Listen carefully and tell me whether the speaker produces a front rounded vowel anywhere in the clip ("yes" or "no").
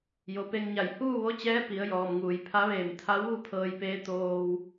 no